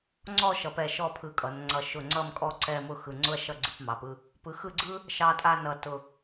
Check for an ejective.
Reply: present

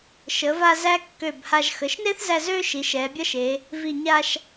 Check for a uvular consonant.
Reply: absent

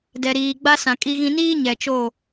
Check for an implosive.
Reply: absent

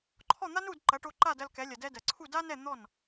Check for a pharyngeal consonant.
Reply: absent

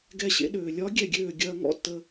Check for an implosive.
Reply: present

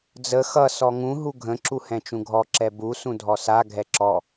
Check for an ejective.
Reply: absent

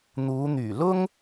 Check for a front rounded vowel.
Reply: present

